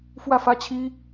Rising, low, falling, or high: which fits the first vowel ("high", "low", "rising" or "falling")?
falling